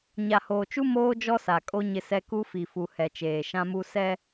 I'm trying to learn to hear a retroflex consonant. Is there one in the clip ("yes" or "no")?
no